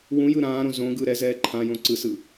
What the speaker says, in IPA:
wũ jɯɾãːɾõ zõɡɯ ɾɛzɛː ǃʰãjõ ǀɯsɯ

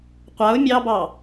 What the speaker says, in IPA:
qʷaʊ̯ mʲɑbɑ

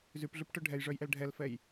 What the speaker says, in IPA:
zypɮʉpʈœ ɖʱɛjʐœjʔɛl ɖʱɛlfɛj

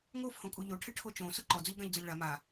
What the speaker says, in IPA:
ŋofhõkʼu ʎoʈʰɪʈʰo t͡ʃõsʊ ǃɔd͡zʊʎɡãʎd͡zʊlʲ ɭa ma

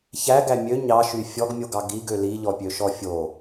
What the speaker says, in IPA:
çæɡæ mʲø ɲɑʃy fʲɔɡmʲoɡɑ ɡiɡø liʎɔpʲøʃɔ fʲo

